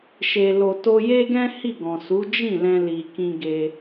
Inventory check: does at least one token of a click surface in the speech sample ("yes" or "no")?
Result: no